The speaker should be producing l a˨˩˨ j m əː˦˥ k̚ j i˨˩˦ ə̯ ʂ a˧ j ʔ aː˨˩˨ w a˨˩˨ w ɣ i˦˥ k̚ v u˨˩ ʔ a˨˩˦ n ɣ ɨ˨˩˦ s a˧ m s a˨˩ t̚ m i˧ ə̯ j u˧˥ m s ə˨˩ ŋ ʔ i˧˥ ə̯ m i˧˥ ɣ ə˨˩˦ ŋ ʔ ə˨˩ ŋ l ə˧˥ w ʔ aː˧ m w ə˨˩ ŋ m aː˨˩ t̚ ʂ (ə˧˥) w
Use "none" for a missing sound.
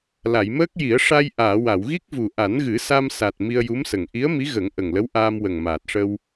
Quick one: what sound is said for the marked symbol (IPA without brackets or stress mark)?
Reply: ə˧